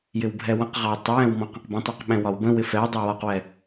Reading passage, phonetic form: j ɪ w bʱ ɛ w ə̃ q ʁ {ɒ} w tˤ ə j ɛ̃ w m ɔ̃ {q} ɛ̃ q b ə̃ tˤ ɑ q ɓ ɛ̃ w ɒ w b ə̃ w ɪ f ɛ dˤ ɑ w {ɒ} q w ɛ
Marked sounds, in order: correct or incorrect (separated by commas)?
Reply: incorrect, correct, correct